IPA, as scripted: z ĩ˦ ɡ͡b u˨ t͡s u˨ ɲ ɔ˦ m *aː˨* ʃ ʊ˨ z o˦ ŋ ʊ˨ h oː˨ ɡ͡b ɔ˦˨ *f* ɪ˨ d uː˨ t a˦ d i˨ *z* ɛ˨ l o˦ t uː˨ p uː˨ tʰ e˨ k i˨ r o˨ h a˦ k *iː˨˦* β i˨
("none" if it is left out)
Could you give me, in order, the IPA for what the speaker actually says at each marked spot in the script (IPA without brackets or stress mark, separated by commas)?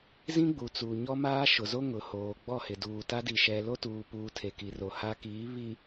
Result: aː˦, h, ʃ, iː˨˦